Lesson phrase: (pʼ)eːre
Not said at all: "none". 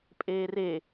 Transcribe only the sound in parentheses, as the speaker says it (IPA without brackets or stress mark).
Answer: pʼ